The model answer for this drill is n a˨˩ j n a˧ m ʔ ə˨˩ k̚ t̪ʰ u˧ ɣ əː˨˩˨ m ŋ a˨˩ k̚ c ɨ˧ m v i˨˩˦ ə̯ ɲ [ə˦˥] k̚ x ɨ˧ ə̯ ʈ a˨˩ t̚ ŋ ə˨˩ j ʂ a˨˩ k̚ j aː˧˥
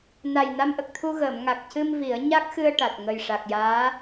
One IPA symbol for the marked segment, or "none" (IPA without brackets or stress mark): a˦˥